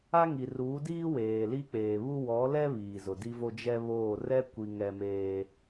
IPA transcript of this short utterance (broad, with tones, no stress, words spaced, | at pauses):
a˦ŋi˨ruː˨˦ diː˦ weː˨li˦k͡peː˨ βu˦ wɔ˨˦lɛ˦ βiː˨zʊ˨di˦vo˦ d͡ʒɛ˦βoː˦˨ rɛ˦ kʷi˦ŋɛ˦meː˦